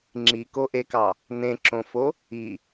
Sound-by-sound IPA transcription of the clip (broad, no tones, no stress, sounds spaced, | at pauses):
ŋ͡ǁ i k o ʔ e k ɑ | n ẽ ǁ õ f o | i